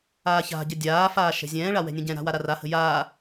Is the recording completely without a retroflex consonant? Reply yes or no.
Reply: no